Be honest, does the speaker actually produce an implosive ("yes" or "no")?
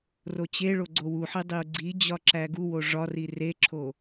no